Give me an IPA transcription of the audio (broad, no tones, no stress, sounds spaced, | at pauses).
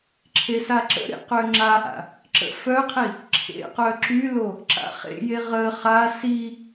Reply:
ǁʰ e s a ǁ ə̰ ɾ ḛ q ø ŋ͡ǁ a ʔ a̰ | ǁ ə̰ f œ qʰ i | ǁʰ ḛ q œ ǁ y l o | ǁ a̰ χ ḛ j e ʁ ə χ a s i